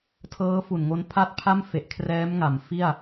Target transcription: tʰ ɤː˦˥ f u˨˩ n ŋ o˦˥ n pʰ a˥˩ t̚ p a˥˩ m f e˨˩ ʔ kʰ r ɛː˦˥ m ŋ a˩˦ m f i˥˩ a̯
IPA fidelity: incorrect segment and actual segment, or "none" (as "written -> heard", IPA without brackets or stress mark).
p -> pʰ